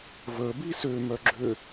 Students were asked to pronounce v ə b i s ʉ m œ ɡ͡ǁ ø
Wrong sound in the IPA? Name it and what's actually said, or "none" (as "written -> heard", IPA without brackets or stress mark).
ʉ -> ø